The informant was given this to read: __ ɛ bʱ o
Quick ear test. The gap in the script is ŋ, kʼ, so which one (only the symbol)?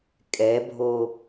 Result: kʼ